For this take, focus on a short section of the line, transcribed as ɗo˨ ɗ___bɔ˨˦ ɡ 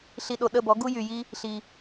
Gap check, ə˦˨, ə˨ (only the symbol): ə˦˨